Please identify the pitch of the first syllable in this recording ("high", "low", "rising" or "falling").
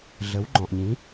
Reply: rising